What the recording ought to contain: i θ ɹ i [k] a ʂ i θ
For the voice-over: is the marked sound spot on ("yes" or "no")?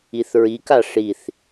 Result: yes